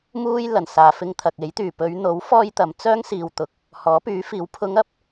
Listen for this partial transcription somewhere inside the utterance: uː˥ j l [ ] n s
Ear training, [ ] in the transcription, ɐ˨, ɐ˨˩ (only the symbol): ɐ˨˩